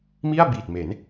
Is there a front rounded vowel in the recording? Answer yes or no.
no